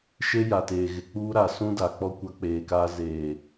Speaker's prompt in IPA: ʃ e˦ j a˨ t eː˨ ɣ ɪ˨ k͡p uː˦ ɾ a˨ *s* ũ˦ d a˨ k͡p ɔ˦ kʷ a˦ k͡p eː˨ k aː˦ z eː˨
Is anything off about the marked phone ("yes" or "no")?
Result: no